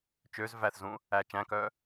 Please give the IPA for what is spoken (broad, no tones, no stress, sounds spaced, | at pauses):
t͡ʃ ø z v æ θ z ũ | æ t͡ʃ æ̃ k œ